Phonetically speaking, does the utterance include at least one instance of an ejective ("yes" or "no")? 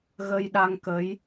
no